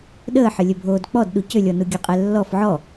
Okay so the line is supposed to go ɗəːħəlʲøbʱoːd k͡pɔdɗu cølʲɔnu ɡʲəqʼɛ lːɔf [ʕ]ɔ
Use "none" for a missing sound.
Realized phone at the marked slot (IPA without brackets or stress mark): ʕ